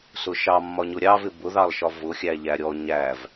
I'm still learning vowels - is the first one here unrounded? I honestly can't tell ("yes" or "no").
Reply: no